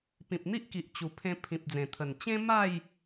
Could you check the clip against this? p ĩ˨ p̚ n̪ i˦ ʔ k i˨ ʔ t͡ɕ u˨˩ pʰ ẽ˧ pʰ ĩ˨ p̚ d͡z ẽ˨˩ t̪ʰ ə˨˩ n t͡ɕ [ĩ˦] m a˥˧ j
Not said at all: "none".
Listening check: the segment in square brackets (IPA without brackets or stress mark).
ẽ˦